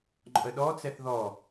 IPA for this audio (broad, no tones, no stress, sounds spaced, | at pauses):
ŋ͡ǃ ɔ̰ ə̯ ɗ ɔ t͡s ɛ θ ð ɔ